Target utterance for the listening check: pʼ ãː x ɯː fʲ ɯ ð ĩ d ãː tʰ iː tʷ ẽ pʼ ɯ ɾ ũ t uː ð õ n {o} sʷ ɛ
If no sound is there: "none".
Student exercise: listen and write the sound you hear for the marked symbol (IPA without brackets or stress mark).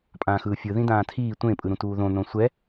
õ